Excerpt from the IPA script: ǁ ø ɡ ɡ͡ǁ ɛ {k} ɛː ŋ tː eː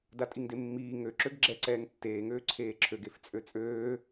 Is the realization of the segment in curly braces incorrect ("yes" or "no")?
yes